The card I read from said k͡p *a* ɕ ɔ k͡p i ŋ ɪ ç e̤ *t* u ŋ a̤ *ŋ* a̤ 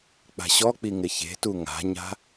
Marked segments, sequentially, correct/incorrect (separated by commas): incorrect, correct, incorrect